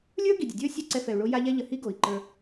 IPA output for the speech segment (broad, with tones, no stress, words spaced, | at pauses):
lʲə˞˦ ɡi˨dʲə˨dʲə˞˦ sʲɛ˦˨ǀɛ˧fɛ˨u̯ɭo˧ ja˦ʎɛ˦ ʎə˨hi˦ɡo˨i̯ǃə˞˧